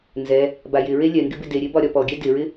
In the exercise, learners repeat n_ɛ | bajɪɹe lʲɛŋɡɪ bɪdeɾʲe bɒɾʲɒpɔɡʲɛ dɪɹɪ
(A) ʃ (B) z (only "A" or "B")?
B